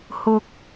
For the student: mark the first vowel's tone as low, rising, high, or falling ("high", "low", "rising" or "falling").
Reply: low